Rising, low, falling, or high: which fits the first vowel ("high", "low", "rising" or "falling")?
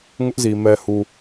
high